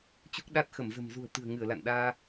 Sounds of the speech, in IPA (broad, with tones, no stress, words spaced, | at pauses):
t͡ɕu˦˥k̚ ɗa˦˥t̚ xə˧˩mzə̤˨˩mzṳ˨˩ə̯ t̪ɨ̤˨˩ə̯ŋɨ˧˩ə̯la̰˧˨nɗaː˧